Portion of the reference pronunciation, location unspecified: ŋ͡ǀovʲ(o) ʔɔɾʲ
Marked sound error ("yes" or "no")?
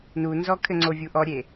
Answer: yes